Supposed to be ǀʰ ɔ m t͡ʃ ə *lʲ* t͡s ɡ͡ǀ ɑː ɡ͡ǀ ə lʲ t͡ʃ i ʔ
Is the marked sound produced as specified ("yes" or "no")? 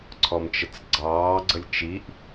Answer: no